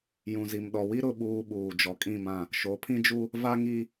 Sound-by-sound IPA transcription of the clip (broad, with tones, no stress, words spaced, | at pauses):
jũ˨zi˨mɗɔ˨wi˦ ɾʊ˨ɓuː˨ ɓuː˨d͡ʒɔ˨kʼĩ˦˨mã˦˨ | ʃo˨˦pʰĩ˦d͡ʒu˦ | va˦ŋi˦